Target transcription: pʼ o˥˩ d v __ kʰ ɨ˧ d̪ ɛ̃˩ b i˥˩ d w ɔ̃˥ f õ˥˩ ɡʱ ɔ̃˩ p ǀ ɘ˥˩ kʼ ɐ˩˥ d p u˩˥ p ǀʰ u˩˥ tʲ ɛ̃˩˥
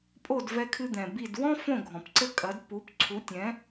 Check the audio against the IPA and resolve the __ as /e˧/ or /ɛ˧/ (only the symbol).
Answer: ɛ˧